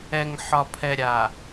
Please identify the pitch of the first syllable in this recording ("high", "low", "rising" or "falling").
low